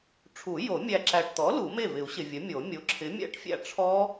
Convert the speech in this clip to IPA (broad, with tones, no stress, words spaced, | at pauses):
ʈ͡ʂʰu˨˩˦ jo˨˩˦ mʲæ˨ ǁæ˨ʈt̪ɔ˩˥ lu˨˩˦me˥˩vɪ˨˩˦u̯ɕɪ˨ vʲə˩˥mʲo˨˩˦ mʲo˩˥ǁʰɪ˩˥mʲæ̰˦˥ʈfʲæ̰˥˩ ʈ͡ʂʰɔ˦˥